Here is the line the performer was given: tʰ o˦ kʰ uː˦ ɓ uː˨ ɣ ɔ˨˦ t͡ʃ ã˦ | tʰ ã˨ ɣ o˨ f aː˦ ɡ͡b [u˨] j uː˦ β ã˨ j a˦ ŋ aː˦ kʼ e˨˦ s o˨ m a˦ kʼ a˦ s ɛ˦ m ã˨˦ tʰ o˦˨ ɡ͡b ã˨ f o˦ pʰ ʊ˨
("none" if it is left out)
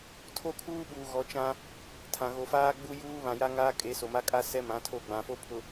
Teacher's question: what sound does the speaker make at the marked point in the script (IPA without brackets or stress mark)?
u˦